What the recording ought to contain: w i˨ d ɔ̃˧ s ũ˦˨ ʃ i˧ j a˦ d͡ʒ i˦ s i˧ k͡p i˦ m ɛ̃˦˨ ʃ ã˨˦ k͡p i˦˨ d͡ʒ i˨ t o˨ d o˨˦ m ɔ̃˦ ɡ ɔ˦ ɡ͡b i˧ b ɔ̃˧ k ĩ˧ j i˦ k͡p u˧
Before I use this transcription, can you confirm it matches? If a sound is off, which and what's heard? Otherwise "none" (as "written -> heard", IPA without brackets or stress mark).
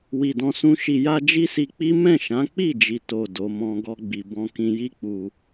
ũ˦˨ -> ũ˦